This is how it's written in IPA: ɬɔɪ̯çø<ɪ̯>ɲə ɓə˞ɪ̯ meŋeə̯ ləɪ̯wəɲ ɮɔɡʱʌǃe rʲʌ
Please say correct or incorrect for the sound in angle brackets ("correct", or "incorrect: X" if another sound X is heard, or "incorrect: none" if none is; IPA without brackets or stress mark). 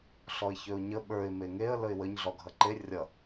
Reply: incorrect: ʊ̯